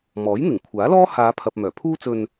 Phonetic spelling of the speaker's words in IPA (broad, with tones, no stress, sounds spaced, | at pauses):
m ɔː˨˥ j n̪ ɪ˨˩ ŋ kʷʰ aː˨˥ l ɔː˥ h aː˨˧ pʰ ɐ˨ p̚ m œː˨˩ pʰ uː˥ t͡s ɵ˧ n